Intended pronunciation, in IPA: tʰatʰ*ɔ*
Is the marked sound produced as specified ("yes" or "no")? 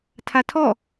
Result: yes